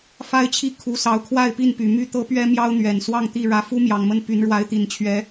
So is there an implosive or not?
no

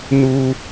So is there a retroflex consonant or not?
no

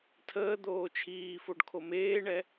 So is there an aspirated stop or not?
yes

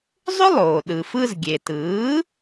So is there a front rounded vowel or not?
yes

